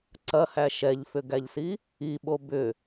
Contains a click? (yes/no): yes